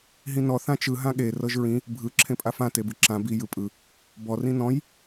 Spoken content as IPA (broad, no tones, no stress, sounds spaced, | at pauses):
ɦ ĩ n ɔ θ ã t͡ʃ ɯ ɦ ã ɠ e r ɤ ʒ ɹ ĩ | bʱ ɯ ǁʰ ẽ pʼ a f ã t e b ɯ ǁ ã b i j ɯ pʼ ɯ | b ɔ r ĩ n ɔ̃ j